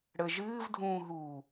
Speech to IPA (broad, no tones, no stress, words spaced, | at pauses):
ɽə ʒɨːvdʱũːɦuː